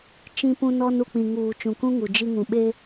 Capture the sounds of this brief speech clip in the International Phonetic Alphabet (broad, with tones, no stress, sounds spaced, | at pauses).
t͡ʃ ĩ˦ p ũ˦ n ɔ˦ n u˨ k͡p ĩ˨ ŋ uː˨ t͡ʃ ũ˨ k ũ˦ ŋ u˨ d͡ʒ i˦ ŋ ũ˨ ɓ e˦